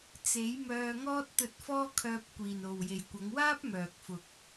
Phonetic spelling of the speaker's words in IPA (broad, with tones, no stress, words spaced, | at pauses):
t͡se˨˥jmœː˧ ŋɔː˥t̚t̪ɵ˧t̚fɔː˥kʰœː˧p̚ kʷiː˨no˨wje˨j kʷɐ˨˧ŋwaː˥p̚ mœː˨k̚fʊ˨k̚